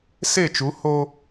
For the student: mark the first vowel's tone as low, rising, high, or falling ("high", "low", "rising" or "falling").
falling